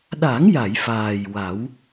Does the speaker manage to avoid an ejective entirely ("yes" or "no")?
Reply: yes